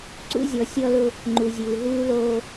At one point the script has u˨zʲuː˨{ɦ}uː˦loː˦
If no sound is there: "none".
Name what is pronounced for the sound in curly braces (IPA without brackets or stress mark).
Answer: ɦ